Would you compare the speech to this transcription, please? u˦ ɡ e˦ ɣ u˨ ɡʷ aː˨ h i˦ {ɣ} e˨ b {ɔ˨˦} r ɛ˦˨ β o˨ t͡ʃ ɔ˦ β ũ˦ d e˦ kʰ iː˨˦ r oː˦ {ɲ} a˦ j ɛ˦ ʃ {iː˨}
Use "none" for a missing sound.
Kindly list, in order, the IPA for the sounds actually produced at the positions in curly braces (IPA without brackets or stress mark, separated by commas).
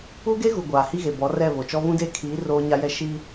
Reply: ɣ, ɔ˨˦, ɲ, iː˦